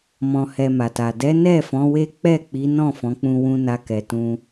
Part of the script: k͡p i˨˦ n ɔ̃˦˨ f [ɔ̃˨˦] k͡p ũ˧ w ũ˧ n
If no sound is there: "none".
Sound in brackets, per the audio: ɔ̃˨˦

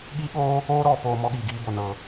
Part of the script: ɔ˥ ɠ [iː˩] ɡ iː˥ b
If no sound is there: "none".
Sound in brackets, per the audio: iː˧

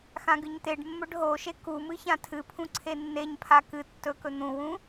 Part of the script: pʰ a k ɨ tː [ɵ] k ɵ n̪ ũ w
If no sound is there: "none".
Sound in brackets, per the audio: ɵ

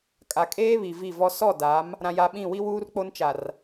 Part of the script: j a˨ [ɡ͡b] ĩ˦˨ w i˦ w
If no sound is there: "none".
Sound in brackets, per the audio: ɓ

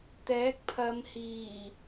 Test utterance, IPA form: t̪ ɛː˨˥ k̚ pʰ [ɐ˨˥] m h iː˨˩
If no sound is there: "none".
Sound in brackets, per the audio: ɐ˨˧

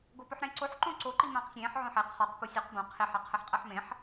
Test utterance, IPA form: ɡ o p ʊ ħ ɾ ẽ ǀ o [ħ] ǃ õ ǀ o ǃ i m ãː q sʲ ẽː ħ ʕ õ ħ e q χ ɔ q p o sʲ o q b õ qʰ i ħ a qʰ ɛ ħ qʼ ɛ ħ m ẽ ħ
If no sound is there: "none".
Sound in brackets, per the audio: ħ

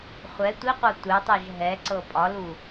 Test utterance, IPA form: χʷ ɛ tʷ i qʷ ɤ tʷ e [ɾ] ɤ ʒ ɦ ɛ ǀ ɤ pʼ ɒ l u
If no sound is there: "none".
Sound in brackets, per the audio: tˤ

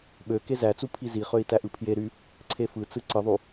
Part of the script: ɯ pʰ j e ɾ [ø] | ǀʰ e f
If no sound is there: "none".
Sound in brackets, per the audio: y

